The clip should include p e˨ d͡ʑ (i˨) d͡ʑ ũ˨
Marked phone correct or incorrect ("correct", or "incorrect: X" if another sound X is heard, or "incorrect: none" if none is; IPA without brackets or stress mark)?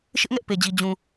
correct